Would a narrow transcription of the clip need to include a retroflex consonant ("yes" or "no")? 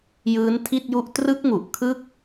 no